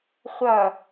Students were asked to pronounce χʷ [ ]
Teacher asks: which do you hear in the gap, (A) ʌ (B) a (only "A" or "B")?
A